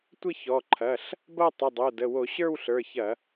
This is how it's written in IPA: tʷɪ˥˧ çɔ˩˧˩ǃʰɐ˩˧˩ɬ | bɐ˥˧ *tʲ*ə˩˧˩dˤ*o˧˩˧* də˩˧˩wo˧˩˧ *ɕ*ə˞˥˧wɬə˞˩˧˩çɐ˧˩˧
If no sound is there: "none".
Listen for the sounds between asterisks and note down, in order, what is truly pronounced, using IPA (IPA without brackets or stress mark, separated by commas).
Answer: tˤ, o˩˧˩, ɕ